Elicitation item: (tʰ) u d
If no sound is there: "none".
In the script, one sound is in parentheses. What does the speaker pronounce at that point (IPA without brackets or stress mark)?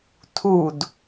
tʰ